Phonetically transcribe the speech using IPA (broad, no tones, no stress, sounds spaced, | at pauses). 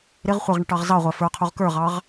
ɾ ɪ ʁ χʷ ʌ ʁ ɳ ə ʈ ɑ ʁ z ɑ ʁʷ æ f ə˞ qʰ u ʁ k ə˞ ʁ ɑ ʁ